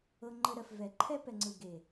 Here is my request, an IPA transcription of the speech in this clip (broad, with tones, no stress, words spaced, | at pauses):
ɤ˧ ŋ͡ǃə˧ɾɜ˨f vɛ˨ǃʰɛ˦pɛ˨ŋ͡ǀɯ˨ ɡe˨